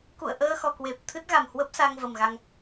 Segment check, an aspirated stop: present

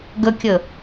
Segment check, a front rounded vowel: absent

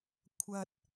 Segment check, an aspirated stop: present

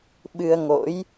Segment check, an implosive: present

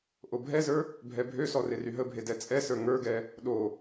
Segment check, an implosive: present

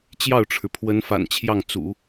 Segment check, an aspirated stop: present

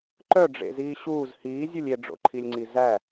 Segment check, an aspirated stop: present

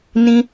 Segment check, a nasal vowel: present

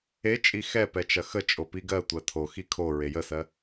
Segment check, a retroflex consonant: absent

